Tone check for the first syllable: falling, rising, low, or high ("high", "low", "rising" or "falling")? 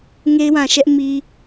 high